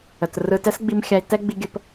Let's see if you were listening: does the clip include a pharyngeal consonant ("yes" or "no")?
no